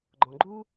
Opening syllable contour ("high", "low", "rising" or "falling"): low